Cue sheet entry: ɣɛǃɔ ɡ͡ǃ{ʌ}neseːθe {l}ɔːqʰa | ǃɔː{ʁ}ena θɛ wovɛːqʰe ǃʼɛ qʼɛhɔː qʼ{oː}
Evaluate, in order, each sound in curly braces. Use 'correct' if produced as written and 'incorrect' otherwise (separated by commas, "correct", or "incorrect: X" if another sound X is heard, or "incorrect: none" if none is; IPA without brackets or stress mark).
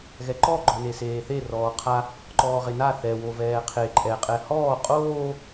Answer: incorrect: ɔ, incorrect: r, correct, correct